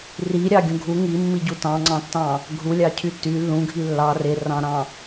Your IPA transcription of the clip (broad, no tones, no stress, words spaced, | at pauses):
riɾʲɑɡʲũ ɡʱu ŋimːiɟu tɑ̃ŋ͡ǀɑ̃tːɑ̃ | ɡʱulʲɑcʰy ty lːũɡʱi lːɑ rerɑ̃ɾɑ̃